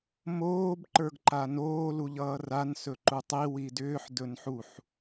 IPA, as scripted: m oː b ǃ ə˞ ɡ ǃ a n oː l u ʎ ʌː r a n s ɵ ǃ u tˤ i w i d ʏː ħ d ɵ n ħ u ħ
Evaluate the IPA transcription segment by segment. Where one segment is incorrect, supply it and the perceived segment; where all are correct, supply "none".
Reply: none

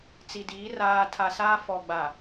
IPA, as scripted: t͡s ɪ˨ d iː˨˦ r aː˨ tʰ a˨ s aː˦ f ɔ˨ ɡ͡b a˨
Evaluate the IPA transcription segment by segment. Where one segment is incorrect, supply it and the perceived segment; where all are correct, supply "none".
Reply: ɪ˨ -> i˨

